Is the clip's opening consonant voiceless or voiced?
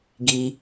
voiced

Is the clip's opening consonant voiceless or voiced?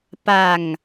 voiceless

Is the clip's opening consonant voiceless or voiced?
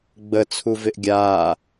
voiced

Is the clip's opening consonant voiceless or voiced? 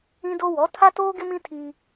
voiced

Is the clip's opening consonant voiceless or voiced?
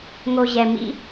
voiced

